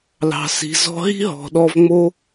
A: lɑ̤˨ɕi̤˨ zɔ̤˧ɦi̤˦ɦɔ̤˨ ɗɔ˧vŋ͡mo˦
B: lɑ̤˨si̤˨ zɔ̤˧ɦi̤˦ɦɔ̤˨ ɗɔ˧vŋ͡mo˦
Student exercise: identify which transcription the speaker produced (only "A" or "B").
B